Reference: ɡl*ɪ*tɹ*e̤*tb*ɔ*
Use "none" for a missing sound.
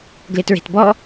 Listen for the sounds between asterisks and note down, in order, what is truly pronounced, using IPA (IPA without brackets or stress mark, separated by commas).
ɪ, e̤, ɔ